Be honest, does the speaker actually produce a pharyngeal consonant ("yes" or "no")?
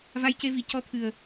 no